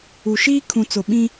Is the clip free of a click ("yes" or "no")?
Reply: yes